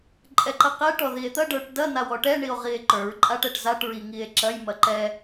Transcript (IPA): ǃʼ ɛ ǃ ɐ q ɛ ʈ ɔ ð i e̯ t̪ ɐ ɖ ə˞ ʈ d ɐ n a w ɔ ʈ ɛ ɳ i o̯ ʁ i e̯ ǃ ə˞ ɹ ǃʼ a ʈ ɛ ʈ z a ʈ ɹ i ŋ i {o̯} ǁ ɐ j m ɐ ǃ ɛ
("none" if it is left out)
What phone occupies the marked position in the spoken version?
e̯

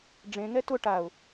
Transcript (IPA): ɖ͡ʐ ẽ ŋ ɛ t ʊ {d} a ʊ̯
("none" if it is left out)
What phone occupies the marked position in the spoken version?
ʈ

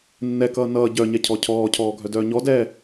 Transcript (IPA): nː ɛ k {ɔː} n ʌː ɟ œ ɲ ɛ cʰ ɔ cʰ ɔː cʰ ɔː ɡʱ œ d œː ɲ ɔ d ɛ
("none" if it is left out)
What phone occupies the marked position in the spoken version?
ʌː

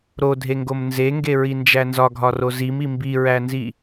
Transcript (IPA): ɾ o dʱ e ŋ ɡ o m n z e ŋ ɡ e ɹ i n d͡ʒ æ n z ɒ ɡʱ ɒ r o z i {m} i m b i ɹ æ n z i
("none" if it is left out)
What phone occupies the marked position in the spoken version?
m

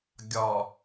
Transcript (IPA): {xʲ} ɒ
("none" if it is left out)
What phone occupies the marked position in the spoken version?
ɡʲ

